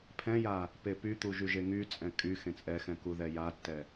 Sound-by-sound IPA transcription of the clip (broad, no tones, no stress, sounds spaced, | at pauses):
pʰ ɛ̃ j a | p e p y t̪ u ʒ y ʒ e ŋ y t͡sʼ ɛ̃ kʼ y x ẽ t͡sʼ ɛ x ɛ̃ k u ð ɛ j a tː ɛ